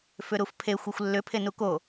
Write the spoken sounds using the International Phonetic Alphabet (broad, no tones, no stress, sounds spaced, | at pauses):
f ʏ ɾ u f pʰ e xʷ ɘ xʷ lː ʏ pʰ e n u k o